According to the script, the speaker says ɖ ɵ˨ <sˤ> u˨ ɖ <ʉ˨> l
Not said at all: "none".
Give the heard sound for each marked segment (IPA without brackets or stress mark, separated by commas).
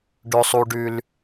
sˤ, ʉ˨